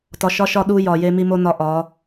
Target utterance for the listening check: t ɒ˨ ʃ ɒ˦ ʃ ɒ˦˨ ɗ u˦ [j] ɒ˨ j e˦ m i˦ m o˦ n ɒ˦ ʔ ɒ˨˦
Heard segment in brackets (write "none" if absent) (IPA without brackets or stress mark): j